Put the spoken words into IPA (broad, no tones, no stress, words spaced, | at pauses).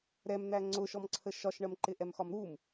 ɾɛmn̪æ ŋ͡ǀʊʃɔmǀʰə ʃɒʃɳɜmǃɪ ʔɛmxɒmɾum